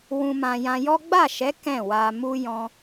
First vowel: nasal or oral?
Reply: nasal